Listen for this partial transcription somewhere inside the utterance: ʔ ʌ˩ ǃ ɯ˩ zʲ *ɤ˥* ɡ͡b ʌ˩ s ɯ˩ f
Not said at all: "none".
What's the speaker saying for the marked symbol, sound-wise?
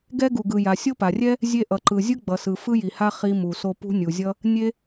ɯ˥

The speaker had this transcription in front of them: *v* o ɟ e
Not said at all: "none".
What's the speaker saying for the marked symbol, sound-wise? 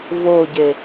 v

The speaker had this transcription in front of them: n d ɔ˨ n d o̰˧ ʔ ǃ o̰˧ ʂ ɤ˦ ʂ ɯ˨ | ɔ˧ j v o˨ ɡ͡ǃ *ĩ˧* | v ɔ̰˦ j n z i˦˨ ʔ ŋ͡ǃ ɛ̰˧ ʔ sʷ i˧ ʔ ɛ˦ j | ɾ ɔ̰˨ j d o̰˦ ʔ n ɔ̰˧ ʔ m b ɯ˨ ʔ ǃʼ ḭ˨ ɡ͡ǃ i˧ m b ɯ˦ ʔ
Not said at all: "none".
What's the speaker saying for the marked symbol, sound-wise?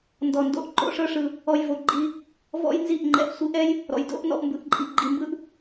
i˧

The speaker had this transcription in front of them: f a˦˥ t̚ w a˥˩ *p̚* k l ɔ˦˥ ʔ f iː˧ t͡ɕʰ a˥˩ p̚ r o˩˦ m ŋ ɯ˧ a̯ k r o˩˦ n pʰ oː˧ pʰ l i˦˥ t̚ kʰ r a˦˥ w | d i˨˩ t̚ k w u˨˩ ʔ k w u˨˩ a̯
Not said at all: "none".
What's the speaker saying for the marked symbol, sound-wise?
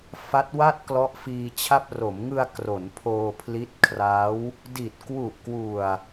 t̚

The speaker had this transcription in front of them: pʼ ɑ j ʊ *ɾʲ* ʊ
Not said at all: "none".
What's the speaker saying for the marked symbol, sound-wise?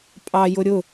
ɾʲ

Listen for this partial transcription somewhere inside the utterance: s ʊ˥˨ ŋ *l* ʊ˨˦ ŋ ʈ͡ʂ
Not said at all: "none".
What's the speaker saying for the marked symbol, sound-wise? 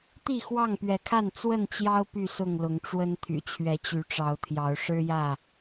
l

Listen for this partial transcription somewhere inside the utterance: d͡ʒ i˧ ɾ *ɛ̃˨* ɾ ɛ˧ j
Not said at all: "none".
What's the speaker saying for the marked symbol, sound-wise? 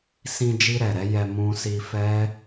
ɛ˨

